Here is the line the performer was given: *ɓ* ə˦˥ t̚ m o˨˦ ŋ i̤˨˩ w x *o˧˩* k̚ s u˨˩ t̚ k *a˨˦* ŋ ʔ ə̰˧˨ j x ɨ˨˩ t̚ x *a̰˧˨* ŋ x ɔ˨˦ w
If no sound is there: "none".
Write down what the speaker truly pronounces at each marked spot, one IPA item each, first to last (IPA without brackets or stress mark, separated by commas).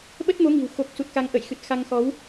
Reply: ɓ, o˨˩, a˨˦, a˧